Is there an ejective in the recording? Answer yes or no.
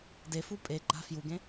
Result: yes